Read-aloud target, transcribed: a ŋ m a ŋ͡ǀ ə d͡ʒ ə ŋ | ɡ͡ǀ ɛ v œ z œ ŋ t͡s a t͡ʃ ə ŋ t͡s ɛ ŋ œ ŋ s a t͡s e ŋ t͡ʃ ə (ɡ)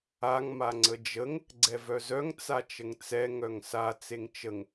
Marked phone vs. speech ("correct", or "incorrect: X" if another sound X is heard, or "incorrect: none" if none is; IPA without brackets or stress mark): incorrect: ŋ